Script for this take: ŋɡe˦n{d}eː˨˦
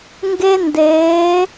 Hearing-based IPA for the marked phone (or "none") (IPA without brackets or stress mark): d